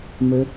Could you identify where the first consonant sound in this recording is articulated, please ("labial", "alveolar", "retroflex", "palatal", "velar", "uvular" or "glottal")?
labial